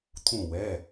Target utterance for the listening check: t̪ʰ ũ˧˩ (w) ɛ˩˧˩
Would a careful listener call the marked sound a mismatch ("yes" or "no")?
no